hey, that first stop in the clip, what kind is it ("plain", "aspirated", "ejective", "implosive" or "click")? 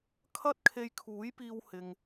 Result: aspirated